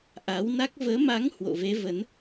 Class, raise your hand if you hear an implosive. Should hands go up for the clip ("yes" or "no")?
no